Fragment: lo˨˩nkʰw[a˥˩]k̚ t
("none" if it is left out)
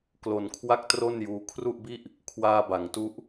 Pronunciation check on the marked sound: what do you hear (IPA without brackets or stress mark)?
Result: a˥˩